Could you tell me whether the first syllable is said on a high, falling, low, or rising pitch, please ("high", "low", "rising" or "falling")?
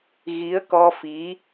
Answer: rising